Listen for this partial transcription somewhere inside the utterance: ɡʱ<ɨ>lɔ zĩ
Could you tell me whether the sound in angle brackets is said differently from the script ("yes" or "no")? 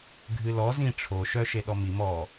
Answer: no